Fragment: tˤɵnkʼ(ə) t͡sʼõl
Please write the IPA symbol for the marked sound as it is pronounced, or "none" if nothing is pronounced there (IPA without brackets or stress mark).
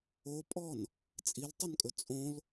ɵ